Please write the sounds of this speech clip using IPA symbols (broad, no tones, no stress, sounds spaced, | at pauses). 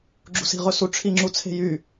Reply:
ɡ͡ǁ ṳ s i̤ ʁ ɵ s u ʈ͡ʂʰ i ŋ͡ǁ u t͡sʰ e̤ j y